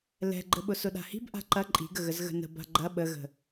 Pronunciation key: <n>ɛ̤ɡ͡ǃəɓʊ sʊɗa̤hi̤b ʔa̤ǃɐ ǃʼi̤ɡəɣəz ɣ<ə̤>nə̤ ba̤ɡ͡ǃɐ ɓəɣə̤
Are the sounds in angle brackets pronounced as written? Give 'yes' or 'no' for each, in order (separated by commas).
no, yes